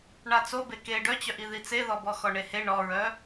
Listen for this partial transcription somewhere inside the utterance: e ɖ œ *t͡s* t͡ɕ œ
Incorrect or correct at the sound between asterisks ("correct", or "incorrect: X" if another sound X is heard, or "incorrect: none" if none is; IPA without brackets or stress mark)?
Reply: incorrect: none